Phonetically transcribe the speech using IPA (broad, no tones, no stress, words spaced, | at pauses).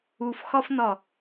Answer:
ufxɒfnɒ